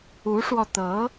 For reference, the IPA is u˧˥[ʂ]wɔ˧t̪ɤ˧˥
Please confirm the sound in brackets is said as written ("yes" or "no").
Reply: yes